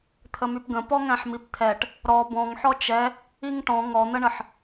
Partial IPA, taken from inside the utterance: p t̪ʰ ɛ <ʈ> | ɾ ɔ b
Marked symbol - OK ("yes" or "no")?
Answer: yes